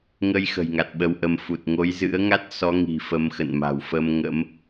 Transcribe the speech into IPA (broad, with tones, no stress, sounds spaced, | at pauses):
ŋ ə˧ j x ə̤˨˩ j ŋ a˨˩ t̚ ɓ ə˧ w ʔ ə˧ m f u˨˩ t̚ ŋ o˨˦ j z ɨ̰˧˥ ə̯ ŋ a˦˥ t̚ s ɔ˨˦ ŋ i̤˨˩ f ə˨˦ m x ə̰˧˨ n m a̤˨˩ w f ə˧ m ŋ ə̰˧˥ m